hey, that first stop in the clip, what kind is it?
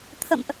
aspirated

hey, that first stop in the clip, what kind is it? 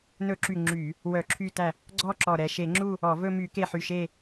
click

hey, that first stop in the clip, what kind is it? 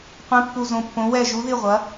plain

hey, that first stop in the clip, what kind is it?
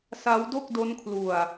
plain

